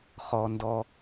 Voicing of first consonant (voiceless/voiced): voiceless